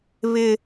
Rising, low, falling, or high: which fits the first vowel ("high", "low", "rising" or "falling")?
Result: high